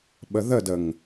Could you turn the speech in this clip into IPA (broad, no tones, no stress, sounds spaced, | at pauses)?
ɓ ə ð ə d ə ŋ